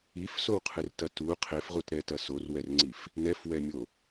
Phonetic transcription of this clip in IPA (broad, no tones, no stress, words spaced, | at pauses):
ifsowqʰɨrtɐ tu qʰefʁutɾɛtɐ sorwɛrŋ͡ǀif | nɛfwɛmʲo